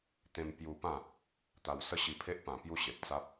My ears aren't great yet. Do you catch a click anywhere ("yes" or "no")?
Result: no